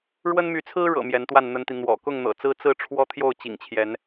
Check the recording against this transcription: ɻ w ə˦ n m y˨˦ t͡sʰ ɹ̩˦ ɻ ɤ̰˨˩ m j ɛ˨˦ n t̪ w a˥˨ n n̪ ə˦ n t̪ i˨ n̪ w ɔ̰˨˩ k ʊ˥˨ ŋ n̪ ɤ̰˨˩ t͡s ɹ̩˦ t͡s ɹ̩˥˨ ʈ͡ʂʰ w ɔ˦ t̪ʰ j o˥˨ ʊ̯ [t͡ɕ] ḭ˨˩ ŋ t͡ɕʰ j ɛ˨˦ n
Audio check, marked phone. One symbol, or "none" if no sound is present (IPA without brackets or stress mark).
t͡ɕ